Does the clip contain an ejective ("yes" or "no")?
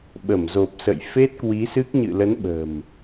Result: no